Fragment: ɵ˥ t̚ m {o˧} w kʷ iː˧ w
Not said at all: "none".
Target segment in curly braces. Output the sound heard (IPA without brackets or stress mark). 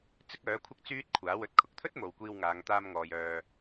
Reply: o˨˧